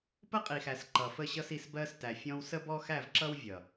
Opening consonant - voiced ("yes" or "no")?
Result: no